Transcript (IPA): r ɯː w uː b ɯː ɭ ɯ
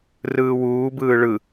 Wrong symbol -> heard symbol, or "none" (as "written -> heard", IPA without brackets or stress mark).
none